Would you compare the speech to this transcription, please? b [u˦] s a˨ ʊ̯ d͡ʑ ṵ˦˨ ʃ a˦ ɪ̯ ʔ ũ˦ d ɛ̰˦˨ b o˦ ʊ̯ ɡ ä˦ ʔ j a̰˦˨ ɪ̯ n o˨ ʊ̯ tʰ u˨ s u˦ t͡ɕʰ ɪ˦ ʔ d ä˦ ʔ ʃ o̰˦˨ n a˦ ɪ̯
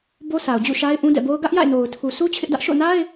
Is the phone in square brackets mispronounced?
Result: yes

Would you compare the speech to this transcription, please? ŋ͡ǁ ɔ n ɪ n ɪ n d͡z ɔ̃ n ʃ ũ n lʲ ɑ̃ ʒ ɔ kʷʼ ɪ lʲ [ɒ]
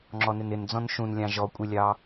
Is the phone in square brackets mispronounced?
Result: yes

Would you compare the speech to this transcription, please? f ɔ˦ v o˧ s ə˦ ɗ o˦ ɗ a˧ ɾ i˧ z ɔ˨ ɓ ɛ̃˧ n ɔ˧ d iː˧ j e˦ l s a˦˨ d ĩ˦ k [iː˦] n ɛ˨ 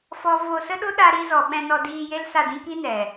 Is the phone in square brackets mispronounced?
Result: yes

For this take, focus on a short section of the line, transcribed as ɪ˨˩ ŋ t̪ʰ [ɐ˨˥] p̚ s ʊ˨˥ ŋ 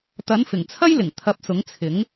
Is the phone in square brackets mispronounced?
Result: no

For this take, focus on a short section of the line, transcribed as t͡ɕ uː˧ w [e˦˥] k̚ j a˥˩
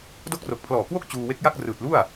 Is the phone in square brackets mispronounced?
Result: no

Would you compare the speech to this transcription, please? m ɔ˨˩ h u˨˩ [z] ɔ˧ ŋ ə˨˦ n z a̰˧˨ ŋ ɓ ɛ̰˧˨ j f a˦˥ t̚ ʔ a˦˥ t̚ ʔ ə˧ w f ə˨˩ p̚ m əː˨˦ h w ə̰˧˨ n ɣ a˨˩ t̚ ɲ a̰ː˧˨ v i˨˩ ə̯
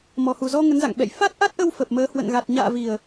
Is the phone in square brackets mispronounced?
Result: no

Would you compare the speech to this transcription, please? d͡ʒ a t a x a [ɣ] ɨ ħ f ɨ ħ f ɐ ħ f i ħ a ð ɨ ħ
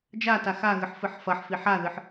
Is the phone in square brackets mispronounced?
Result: no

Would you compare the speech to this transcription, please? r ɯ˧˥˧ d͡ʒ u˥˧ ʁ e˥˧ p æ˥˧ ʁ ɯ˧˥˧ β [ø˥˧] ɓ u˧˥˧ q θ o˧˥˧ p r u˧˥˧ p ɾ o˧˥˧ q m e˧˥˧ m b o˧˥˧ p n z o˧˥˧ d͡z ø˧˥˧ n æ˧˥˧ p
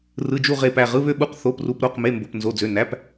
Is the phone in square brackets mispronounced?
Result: no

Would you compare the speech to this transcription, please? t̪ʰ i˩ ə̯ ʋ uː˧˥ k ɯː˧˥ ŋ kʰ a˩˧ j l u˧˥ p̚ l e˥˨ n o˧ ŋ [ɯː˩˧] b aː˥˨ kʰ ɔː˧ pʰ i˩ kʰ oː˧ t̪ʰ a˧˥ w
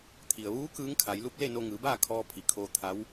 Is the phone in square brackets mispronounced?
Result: no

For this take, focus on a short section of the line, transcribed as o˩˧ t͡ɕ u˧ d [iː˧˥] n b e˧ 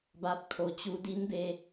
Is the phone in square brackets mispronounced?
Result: yes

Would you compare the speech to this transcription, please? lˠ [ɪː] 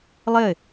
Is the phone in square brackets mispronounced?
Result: yes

